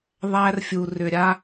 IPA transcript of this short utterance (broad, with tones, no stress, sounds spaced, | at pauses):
ðˤ æ˦ r fʲ u˨ r ʏ˨ ɾʲ a˦